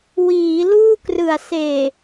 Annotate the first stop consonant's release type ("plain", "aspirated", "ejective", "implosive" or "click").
plain